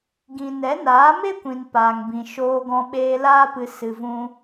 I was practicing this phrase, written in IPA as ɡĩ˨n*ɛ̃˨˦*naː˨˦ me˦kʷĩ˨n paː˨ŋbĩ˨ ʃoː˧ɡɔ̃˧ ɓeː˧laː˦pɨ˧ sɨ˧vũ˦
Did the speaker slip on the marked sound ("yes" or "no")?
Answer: yes